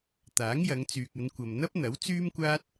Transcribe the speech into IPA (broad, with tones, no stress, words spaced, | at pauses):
t̪aː˨˥ŋjɐ˨˧ŋ t͡syː˨k̚ɐ˨˧nkʷɐ˨m n̪ɐ˥p̚n̪ɐ˨˥w t͡syː˥mkʷaː˥t̚